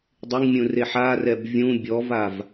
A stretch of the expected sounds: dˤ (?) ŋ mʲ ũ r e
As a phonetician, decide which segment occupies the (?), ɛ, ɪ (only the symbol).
ɪ